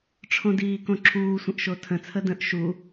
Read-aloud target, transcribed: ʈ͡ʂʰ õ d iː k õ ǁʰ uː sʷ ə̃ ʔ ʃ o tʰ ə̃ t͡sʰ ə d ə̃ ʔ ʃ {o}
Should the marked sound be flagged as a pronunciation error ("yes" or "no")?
yes